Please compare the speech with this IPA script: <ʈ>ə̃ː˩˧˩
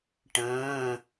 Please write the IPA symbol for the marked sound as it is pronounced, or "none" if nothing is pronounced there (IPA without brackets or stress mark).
ʈ